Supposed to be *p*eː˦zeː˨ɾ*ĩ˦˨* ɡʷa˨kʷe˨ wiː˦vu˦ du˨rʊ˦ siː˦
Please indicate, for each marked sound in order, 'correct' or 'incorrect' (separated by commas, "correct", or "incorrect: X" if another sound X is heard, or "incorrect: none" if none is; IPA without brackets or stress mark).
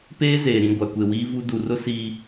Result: correct, correct